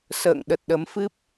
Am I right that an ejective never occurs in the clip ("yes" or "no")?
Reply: yes